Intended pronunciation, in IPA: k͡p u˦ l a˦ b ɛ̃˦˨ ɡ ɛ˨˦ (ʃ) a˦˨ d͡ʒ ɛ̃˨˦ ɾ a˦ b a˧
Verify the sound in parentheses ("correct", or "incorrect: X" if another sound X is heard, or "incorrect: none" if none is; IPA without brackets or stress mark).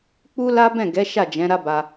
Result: correct